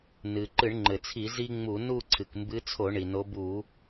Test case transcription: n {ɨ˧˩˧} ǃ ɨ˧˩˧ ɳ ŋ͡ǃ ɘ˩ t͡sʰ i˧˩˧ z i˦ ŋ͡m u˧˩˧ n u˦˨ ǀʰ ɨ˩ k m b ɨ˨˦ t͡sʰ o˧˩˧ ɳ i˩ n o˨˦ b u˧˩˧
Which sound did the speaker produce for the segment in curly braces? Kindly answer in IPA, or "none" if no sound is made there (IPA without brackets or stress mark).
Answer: ɨ˩